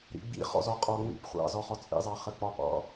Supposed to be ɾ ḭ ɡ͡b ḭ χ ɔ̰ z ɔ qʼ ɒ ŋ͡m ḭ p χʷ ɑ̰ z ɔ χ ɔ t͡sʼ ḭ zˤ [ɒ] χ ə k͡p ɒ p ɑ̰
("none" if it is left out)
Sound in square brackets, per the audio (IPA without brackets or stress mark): ɑ